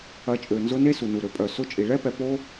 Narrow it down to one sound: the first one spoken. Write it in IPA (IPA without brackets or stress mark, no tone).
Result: ɐ